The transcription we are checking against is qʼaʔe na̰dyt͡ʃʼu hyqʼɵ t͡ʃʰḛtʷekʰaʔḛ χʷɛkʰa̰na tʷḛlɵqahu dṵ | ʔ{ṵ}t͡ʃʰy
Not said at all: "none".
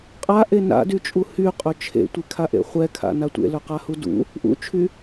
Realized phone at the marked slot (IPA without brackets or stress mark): ṵ